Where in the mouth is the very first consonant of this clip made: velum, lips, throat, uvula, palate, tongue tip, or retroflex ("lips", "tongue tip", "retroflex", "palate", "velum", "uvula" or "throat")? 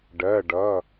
retroflex